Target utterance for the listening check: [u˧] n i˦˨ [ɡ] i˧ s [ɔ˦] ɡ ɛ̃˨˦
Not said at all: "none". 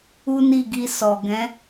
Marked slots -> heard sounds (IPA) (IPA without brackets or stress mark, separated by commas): u˦, ɡ, ɔ˨